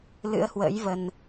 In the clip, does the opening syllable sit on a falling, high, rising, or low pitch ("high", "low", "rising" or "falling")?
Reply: rising